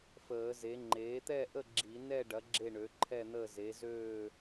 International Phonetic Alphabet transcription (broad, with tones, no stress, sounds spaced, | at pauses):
f əː˨˩˦ z e˩˥ ŋ͡ǃ eː˩˥ t̪ ɛ˥˨ ʔ ə˥˨ ɡ͡ǁ i˨˩˦ n ɛ˥˨ ɖ ɐ˩˥ ɡ͡ǁ e˥˨ ɳ ø˩˥ ǃʰ ɛ˥˨ n̪ əː˥˨ z e˩˥ z øː˥˨